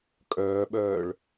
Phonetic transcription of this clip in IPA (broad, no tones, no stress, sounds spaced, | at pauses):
kʼ œː ɓ œː ɭ